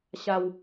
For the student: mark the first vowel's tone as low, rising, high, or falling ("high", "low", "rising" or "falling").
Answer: low